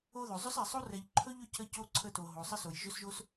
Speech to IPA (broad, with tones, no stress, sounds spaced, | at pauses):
o˧ ð ɵ˨ zˤ ɵ˦ s ɛ˨ sˤ o˦ r ɛ˨ ʎ ǃʰ ɵ˦ ʎ ɵ˦ c ə˦ c o˦ ǀʰ ə˧ t o˨ ɦ o˨ sˤ ə˦ s o˨ j ʒ ɵ˦ s ʒ o˦ s